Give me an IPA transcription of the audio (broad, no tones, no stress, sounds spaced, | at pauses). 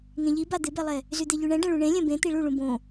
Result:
ŋ ẽ ʎ i b a d̪ ɪ b ɛ lˠ ɛ | z y d̪ e ʎ y ɳ ɛ̃ ɖ ɛ̃ ɭ ũ ɳ ẽ lʲ ɛ̃ b ẽ t̪ i ɭ u ɭ ũ b õ